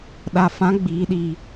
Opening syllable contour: low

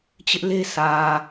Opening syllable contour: high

